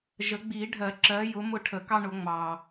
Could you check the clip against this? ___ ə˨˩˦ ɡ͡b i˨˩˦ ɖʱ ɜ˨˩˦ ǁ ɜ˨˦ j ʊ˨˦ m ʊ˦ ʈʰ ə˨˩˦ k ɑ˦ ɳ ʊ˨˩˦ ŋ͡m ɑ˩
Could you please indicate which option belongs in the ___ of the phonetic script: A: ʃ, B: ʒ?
B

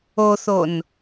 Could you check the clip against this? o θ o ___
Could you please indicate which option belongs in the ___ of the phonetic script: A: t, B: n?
B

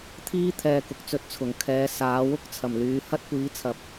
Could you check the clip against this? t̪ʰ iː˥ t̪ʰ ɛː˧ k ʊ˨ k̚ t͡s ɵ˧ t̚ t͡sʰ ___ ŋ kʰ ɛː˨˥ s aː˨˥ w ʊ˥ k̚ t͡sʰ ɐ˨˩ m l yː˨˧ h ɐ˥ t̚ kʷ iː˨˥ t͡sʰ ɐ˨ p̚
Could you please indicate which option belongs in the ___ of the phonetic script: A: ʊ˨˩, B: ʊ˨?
A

